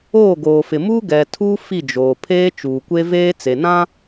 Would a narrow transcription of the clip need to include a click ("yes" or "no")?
no